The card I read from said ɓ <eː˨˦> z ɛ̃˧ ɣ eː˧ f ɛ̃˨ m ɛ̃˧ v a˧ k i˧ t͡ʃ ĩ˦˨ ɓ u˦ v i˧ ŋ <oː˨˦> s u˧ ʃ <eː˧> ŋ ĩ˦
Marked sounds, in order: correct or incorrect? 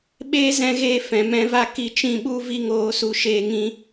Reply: incorrect: eː˦, correct, correct

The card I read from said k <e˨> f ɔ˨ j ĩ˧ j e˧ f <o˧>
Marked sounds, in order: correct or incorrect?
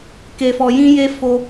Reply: correct, correct

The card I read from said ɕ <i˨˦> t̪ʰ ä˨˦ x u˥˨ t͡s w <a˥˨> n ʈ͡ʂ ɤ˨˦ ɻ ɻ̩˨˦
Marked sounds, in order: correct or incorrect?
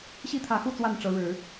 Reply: incorrect: i˥˨, correct

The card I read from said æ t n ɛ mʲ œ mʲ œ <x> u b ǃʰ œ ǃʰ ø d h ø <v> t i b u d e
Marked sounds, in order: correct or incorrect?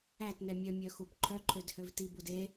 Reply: correct, correct

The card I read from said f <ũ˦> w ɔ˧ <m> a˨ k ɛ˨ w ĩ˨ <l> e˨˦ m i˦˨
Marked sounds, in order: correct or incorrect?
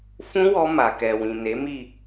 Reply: correct, correct, incorrect: n

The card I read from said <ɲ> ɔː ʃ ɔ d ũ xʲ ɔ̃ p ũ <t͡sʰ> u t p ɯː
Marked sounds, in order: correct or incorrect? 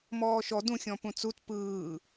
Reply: incorrect: m, incorrect: t͡s

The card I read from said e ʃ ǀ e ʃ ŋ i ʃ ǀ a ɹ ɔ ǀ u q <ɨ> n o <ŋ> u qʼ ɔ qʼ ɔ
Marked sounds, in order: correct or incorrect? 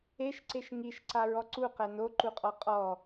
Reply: incorrect: ɛ, incorrect: ǃ

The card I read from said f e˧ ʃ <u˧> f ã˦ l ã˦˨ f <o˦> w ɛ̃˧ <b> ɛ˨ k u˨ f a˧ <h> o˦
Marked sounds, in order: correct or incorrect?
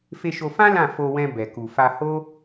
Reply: incorrect: o˧, incorrect: o˧, correct, correct

